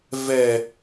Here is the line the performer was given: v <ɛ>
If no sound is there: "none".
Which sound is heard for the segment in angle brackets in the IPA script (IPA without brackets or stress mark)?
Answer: ɛ